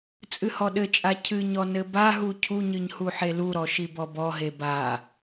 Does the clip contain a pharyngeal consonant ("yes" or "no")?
yes